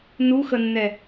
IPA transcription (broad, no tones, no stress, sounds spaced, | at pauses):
n u x ə nː ɛ